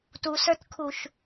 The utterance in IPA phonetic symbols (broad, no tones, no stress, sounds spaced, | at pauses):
t u s ə˞ t kʰ u ʃ